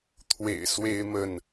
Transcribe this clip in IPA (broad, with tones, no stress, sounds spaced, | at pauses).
t̪ʰ w ḛ˨˩ ɪ̯ s w e˦ ɪ̯ m ə˥˨ n